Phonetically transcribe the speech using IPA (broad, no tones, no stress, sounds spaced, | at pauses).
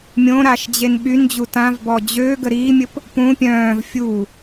mʲ õ ɾ a ʃ d͡ʑ e n ɓ y n d͡ʑ u t ã v b ɔ d͡ʑ ø ɡ ə ɾ iː mʲ ə p | p ũ pʲ œ̃ː v fʲ u